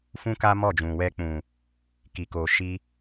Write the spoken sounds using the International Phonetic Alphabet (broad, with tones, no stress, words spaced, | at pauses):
fũ˦ka˦ mɔ˦˨d͡ʒũ˨wɛ˧ k͡pũ˨ | ki˨ko˨ʃi˧